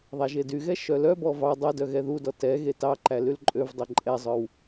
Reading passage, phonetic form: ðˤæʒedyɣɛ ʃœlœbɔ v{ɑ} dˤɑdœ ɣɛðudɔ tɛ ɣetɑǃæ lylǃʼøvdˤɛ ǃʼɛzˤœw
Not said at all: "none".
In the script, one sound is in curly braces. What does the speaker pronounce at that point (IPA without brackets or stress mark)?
ɑ